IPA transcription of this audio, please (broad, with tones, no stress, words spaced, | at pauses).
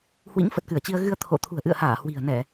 hwḭ˧˥ŋfə˨˩t̚kɨ˧˩ə̯t͡ɕi˧ə̯ ɣɨ˧ə̯t̪ʰo̰˧˨ t̪ʰṳ˨˩ə̯ʔɨ̰˧˨ə̯haː˧˩ hwi̤˨˩ə̯nɛ˧˩˨